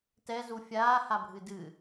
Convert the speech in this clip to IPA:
t ɛ z u fʲ aː h a bʱ ɨ d ɨ

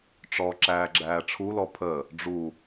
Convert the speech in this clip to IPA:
ʈ͡ʂ ɔ ǁ æː ɡ͡ǁ æː ʈ͡ʂʰ u l ɔ pʰ ə | ɖ͡ʐ u

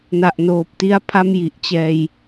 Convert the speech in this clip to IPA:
n a˨˩ ʔ n oː˨˩ p̚ t i˦˥ a̯ pʰ a˥˩ m j i˨˩ ʔ t͡ɕ ɛː˧ j

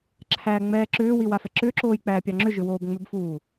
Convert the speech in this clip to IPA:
ǁʰ æː ŋ͡m ɛː ǁ ʏː w i w a f ɛ ǁ ʏː ǁ oː j k͡p æː pʲ ɑ ŋ͡ǁ ʏ ʒ ʏ w oː b ŋ͡m ʏ b f uː

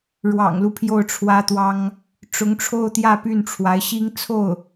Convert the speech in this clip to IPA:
ɻ w ɑ̰˨˩ ŋ l u˦ pʰ j o˥˩ ʊ̯ ʈ͡ʂʰ w ä˥ t̪ w ɑ˥ ŋ | ʈ͡ʂ ʊ˧˥ ŋ ʈ͡ʂʰ o˥˧ ʊ̯ t̪ j ä˥˧ p y˥˩ n ʈ͡ʂʰ w a˧˥ ɪ̯ ɕ i˥ ŋ t͡sʰ o˥˩ ʊ̯

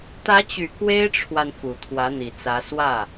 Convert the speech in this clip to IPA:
t̪ ä˧˥ t͡ɕ y˨˩ k w e˥ ɪ̯ ʈ͡ʂʰ w a˨ n f u˨˩ t̪ʰ w ä˧˥ n̪ i˨˩ t͡s ä˧˥ s w ä˥˩

